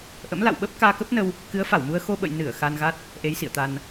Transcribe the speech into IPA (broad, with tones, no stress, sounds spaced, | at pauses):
ʔ ə̰˧˥ m l a̰˧˨ w ɓ ə˦˥ p̚ k aː˧ k ə˦˥ p̚ n ə˧ w | k ɨ˨˦ ə̯ f a˧˩ w m u˧ ə̯ x o˧ ɓ ə̰˧˨ j n ɨ˧˩ ə̯ x a˧ n ɣ a˦˥ t̚ | ʔ e˨˦ j s ḭ˧˨ ə̯ t̪ a˧ n